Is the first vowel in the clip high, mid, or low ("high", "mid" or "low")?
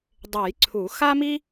mid